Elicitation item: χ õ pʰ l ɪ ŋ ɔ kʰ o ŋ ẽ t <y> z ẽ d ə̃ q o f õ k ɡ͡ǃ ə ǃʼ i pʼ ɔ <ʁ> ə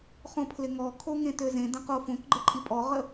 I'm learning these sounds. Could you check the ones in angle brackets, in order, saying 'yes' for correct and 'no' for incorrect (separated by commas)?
no, yes